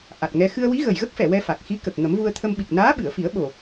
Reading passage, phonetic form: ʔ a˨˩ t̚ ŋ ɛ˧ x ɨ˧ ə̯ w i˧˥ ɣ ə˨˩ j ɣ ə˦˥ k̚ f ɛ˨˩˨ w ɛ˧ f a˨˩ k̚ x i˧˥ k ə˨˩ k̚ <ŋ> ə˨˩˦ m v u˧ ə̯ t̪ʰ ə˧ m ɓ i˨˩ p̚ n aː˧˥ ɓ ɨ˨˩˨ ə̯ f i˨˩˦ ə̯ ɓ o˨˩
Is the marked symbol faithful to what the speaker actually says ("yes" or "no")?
yes